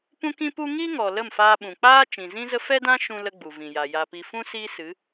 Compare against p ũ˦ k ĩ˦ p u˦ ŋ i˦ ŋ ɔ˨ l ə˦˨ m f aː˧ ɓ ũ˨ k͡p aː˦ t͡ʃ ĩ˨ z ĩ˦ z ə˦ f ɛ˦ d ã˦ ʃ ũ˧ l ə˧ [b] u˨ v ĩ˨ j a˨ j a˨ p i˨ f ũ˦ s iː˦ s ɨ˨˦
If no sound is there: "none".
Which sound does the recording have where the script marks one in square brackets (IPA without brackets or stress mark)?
ɡ͡b